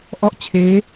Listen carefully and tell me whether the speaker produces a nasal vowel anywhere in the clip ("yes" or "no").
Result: no